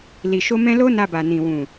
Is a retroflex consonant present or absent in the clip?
absent